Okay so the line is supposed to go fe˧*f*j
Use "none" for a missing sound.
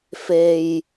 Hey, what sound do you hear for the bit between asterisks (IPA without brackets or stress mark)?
none